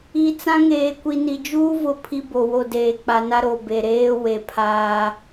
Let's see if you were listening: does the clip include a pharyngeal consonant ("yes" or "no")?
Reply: no